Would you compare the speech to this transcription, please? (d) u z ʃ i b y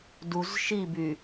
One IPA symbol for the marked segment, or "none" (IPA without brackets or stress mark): d